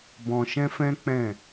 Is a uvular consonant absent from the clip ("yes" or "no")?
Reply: yes